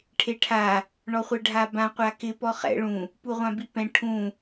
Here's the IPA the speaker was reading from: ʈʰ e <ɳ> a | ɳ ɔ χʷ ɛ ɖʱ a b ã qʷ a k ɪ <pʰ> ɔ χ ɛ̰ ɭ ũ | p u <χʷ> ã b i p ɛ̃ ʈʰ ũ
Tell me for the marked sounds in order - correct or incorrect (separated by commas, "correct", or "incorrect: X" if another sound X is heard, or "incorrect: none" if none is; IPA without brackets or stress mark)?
incorrect: ʈʰ, incorrect: p, incorrect: ʁʷ